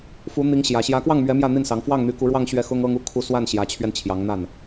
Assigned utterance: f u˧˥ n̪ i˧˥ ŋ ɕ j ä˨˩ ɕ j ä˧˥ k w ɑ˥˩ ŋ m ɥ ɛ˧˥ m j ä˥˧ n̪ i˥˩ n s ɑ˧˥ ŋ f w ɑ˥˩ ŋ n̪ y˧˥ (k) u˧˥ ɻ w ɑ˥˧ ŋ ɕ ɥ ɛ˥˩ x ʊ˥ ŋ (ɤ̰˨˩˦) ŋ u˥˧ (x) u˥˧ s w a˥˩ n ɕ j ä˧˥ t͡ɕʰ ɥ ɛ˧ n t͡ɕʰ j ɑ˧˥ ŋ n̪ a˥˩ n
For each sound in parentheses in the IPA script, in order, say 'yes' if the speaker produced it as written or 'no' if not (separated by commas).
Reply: yes, no, no